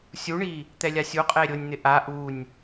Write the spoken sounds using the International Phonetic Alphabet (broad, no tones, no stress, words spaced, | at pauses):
sʲuɳi | t̪ɛlʲasʲu qʼeɾʲʊnʲn̪ɪ ʔa ʔunʲ